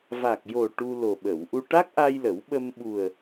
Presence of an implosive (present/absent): present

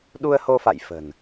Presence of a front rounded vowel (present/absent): absent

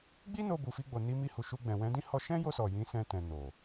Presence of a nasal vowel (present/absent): present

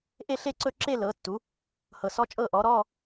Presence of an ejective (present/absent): present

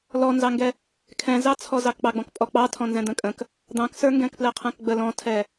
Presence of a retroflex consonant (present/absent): absent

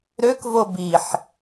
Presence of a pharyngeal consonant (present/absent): present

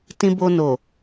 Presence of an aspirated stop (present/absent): absent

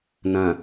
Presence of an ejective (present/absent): absent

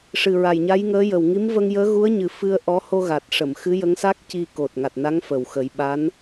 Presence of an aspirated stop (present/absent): absent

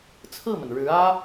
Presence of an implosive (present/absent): absent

